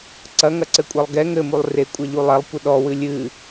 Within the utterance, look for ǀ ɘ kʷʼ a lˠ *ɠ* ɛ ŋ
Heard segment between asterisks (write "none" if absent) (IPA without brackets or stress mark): ɡ